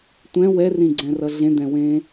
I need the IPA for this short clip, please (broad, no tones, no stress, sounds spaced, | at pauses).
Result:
tʷ ɛ̃ w ɛ r ĩ ɡ͡ǀ ɛ̃ r ʌ ɮ ẽ d̪ ɛ̃ w ẽ